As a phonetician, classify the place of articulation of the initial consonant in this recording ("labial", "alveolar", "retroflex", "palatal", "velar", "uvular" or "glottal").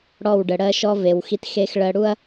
retroflex